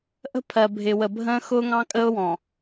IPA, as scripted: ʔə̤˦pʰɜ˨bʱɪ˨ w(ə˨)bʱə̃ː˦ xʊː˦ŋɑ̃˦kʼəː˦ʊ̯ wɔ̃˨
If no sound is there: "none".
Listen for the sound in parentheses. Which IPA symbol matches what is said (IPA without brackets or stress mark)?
ə˨